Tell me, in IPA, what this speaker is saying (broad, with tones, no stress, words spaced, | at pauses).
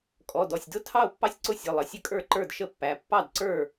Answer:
kʼɔ˩˧˩dɔ˩˧˩sʲdʊ˥˩ tʰɑ˥˩o̯pːɑ˥˩sʲǀʊ˥˩ sʲə˩˧˩lˠə˩˧˩ sʲə˥˩kʼə˞˥˩ǃə˞˥˩d ʃə˥˩pːæ˩˧˩ pːɑ˥˩d ǀə˞˥˩